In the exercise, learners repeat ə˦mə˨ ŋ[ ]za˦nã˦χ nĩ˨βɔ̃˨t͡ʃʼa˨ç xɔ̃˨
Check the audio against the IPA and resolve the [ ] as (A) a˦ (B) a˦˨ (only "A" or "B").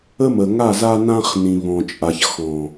B